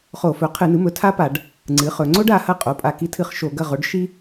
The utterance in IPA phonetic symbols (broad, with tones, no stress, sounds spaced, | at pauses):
χ o˧˩˧ f ɵ˩˥ qʰ ɨ˧˩˧ n ɨ˩˥ m ɵ˩˥ tʰ a˥ p a˧˩˧ ɖ | ŋ͡ǀ ɨ˩˥ χ ɵ˩˧ ŋ͡ǀ o˥ ɖ a˩˧ h ɐ˦˨ qʼ o˩˧˩ pʼ a˦˨ k i˥ tʰ ɨ˦˨ χ ʃ o˧˩˧ ɡ ɐ˦˨ ʁ o˩˥ ɖ ʃ i˥